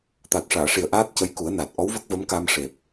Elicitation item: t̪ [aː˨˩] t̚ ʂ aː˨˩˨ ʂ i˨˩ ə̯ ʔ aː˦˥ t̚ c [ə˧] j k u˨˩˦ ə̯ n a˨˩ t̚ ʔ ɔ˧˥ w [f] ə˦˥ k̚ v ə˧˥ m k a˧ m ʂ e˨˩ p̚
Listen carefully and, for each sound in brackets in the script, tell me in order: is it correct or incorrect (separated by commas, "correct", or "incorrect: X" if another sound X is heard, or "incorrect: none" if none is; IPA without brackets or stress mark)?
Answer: incorrect: a˨˩, incorrect: ə˧˥, incorrect: v